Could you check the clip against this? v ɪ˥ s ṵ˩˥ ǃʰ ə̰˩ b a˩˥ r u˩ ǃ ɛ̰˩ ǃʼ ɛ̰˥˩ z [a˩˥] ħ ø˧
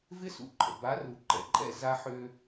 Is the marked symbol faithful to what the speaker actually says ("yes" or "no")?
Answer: no